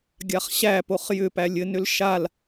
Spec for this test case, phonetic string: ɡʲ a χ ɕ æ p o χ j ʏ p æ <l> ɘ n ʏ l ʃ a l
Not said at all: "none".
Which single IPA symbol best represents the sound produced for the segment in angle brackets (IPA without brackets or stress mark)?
lʲ